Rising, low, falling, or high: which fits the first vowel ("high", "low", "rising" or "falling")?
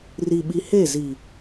low